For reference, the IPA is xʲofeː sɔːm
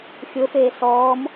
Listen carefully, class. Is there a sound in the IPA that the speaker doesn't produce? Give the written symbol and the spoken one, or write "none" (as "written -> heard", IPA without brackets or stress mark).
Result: none